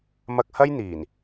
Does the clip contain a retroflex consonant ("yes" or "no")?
no